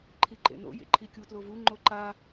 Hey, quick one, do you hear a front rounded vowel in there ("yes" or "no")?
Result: no